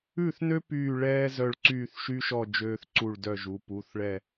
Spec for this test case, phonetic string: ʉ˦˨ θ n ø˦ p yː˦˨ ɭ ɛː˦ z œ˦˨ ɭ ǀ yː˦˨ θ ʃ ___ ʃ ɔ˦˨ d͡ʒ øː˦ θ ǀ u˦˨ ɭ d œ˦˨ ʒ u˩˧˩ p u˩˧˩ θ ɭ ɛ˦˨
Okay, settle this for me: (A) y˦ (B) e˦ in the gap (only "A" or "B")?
A